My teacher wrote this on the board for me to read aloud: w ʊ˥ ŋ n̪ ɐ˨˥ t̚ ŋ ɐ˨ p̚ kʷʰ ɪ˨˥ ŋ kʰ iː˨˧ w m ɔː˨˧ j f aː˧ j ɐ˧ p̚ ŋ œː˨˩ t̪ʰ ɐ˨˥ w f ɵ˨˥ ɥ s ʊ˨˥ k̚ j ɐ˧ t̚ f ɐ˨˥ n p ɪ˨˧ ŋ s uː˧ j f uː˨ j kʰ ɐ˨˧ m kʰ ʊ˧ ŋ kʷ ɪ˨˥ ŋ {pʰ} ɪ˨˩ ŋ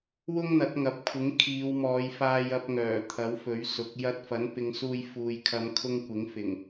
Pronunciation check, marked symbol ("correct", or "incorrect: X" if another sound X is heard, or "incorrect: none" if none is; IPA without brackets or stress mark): incorrect: f